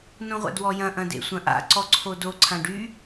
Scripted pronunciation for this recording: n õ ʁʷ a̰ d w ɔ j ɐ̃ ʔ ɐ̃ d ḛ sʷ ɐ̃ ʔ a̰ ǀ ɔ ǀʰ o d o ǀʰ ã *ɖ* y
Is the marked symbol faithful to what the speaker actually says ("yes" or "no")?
yes